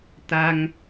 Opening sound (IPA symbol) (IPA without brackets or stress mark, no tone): t̪